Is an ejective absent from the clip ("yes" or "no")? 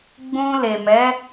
yes